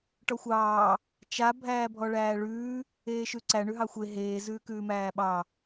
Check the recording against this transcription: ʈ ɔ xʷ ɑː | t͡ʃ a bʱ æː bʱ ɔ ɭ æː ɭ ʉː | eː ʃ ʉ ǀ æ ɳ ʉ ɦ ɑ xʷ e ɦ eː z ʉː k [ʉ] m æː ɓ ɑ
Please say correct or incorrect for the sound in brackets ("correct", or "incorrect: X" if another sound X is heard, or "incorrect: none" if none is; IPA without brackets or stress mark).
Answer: incorrect: ʉː